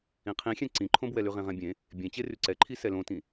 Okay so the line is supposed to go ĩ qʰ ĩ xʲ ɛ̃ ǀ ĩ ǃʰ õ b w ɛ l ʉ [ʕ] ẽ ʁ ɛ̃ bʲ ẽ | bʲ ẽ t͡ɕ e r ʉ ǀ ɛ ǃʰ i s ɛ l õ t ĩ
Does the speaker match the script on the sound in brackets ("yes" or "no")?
no